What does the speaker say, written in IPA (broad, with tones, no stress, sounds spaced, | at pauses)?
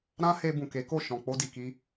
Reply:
ɾ ã˦ h e˧ b ũ˨ k e˨˦ k o˦˨ ʃ ɔ̃˨ k͡p o˧ d i˨ k i˧